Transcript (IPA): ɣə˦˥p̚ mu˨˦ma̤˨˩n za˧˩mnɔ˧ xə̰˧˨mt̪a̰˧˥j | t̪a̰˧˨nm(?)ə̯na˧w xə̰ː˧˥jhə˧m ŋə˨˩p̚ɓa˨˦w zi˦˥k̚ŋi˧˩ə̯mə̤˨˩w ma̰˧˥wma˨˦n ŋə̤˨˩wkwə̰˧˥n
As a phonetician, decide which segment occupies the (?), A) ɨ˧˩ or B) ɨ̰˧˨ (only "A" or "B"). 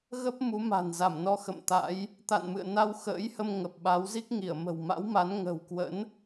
B